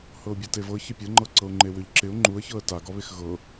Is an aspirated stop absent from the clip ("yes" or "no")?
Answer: yes